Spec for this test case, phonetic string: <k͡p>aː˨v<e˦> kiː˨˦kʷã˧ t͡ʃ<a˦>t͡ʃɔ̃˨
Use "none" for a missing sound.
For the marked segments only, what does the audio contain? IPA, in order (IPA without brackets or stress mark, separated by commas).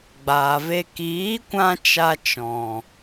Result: ɡ͡b, e˧, a˧